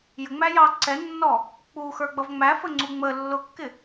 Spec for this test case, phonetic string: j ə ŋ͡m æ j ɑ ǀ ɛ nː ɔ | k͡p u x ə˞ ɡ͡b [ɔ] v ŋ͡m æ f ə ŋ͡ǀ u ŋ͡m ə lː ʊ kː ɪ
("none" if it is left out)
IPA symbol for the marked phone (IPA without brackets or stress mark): ʌ